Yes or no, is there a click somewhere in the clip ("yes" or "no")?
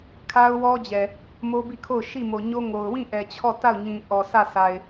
no